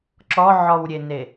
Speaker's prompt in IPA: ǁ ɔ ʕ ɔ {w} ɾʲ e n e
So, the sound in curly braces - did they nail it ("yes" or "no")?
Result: yes